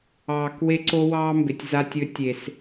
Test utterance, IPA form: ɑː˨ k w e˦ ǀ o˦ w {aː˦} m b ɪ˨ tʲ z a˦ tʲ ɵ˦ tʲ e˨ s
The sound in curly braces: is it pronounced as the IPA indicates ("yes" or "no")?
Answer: no